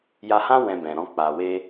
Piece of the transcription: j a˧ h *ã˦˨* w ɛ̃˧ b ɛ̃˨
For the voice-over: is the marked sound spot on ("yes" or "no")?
no